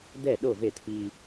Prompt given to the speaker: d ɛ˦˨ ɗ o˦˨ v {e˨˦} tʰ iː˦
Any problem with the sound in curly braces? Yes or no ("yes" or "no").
yes